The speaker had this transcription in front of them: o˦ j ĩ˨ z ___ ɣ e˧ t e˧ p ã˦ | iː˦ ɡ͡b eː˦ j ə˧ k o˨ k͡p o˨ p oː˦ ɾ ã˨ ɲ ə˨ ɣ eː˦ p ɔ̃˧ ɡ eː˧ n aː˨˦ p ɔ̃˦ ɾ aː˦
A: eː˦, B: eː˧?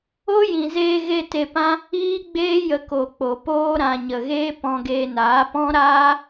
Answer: B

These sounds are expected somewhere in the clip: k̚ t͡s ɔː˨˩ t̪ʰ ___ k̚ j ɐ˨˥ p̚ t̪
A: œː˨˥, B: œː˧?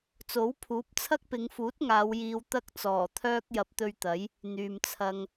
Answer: B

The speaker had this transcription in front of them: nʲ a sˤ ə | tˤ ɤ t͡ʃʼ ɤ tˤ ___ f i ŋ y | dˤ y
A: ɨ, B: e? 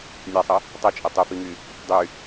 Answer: A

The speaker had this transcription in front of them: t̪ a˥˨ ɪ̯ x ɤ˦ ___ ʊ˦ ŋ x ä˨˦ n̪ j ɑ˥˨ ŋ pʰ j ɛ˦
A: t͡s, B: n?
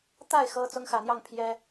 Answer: A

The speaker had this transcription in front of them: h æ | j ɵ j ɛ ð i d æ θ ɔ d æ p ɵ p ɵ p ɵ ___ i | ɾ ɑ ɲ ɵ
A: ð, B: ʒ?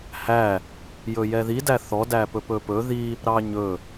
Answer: A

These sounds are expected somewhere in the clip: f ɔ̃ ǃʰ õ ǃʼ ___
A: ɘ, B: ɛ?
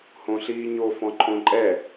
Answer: B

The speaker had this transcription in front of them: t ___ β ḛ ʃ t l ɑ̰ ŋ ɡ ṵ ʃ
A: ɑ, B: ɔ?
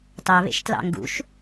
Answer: A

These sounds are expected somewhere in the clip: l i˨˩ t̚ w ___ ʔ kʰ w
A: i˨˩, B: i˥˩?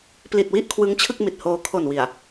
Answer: B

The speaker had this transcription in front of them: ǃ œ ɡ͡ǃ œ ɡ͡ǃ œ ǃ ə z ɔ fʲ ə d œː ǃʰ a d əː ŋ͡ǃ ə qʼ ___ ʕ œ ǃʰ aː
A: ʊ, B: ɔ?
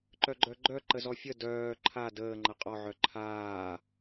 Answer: B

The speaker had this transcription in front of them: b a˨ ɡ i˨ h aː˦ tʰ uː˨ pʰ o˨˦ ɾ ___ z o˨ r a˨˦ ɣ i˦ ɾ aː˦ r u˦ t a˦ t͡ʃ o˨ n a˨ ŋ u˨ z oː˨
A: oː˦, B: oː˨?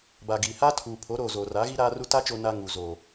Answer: B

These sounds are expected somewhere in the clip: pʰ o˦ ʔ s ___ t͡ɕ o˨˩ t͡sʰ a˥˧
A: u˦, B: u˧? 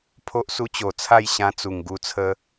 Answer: A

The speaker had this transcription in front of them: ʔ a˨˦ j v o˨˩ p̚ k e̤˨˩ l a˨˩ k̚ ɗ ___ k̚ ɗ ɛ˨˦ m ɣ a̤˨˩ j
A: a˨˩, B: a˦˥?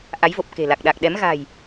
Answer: A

